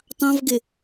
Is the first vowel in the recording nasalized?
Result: yes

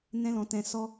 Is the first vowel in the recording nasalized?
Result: yes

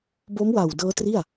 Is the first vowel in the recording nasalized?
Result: no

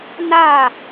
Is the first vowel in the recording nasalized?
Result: no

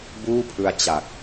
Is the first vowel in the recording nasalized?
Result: no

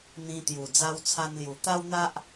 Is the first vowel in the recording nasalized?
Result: yes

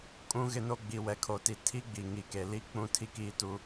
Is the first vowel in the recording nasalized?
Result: yes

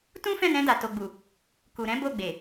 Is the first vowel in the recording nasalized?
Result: yes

